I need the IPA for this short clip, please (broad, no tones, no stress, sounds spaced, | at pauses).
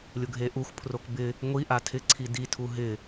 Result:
lʲ ʊ ɡʱ e ʔ u xʷ pʰ r o k b ɪ | ŋʷ i ʔ a tʰ ɪ ǀʰ i d i tʰ u ɦ ɪ